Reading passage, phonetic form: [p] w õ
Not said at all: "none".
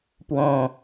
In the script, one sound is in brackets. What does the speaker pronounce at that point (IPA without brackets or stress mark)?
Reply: p